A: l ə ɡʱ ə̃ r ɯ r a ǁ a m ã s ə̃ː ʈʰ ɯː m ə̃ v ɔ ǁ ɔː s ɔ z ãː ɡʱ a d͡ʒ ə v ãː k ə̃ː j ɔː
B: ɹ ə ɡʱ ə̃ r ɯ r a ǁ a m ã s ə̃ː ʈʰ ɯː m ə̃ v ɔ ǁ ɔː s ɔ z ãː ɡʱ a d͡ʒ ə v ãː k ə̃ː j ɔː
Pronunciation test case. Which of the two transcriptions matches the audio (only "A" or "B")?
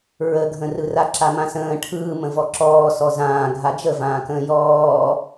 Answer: B